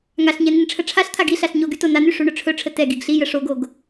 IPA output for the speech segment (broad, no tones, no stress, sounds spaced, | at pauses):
ŋ a ɬ ɲ ɛ n i n ʈ͡ʂʰ ə ʈ͡ʂʰ a ɬ t̪ʰ a ɡ i ɬ a ɬ ɲ o ɡ y t o n a n y ʂ u ɳ ɵ ʈ͡ʂʰ ɵ ʈ͡ʂʰ ə t ɛ ɡ i ɡ ɬ i j ə ʂ o ɡ o ɡ